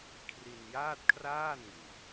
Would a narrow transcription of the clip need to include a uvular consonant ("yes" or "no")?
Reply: no